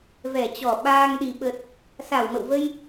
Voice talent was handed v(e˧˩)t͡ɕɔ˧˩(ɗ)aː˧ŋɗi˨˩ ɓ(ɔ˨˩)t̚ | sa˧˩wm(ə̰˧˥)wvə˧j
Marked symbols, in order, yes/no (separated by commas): no, no, no, no